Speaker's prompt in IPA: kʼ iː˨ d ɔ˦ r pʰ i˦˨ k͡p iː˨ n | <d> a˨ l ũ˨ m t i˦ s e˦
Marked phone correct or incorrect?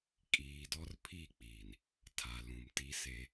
incorrect